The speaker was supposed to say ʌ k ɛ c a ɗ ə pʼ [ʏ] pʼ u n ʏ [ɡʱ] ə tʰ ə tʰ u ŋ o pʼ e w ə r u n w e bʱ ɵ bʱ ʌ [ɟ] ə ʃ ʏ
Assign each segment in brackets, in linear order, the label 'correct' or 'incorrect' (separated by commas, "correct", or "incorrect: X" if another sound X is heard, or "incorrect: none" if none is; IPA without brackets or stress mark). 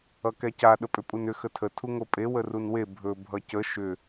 correct, incorrect: x, incorrect: c